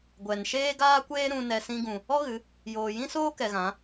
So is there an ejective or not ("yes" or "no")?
no